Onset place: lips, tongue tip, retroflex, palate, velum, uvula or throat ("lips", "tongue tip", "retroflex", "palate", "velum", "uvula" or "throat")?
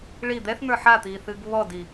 retroflex